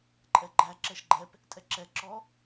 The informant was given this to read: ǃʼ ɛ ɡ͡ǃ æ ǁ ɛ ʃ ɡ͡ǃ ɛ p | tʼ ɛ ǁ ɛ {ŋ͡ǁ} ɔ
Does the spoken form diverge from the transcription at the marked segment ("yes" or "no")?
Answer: yes